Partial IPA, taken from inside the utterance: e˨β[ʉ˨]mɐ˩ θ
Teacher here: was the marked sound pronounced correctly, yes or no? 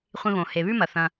no